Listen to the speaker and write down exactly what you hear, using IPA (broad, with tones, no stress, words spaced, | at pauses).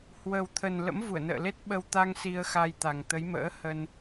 hwə˨˩wt̪ʰə˨˩n lə̰˧˥mvu˧˩ə̯nə̰ː˧˨ le˦˥t̚ɓə˧w t̪a˧ŋ si˧ə̯xa˧jt̪a˨˩ŋ t̪ə˨˦jmə̰ː˧˥ hə˧n